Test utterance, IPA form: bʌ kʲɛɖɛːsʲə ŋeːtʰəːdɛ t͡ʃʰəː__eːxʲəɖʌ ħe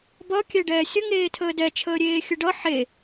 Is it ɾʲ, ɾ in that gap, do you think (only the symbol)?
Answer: ɾʲ